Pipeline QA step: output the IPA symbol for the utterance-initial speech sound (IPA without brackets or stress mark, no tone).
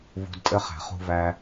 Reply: v